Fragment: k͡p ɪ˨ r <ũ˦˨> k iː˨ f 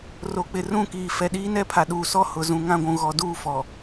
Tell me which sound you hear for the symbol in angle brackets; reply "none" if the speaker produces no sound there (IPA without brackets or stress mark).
ũ˦˨